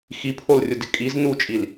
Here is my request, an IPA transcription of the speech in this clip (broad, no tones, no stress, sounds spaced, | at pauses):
x i pʰ o l rʲ ʊ d ɪ kʼ i z n u t͡ʃʼ i l